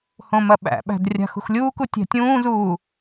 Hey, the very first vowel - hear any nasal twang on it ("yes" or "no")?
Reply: yes